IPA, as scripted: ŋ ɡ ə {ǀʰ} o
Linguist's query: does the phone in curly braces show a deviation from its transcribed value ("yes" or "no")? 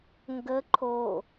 yes